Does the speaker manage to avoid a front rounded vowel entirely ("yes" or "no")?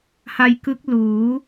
yes